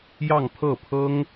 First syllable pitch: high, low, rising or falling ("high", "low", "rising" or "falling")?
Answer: falling